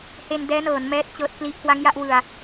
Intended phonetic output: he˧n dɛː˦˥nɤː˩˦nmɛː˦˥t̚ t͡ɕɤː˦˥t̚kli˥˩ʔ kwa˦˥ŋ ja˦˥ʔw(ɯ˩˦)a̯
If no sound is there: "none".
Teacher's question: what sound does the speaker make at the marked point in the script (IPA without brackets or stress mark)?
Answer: ɯ˧